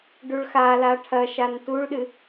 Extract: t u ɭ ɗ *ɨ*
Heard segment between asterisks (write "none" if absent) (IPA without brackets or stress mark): ɨ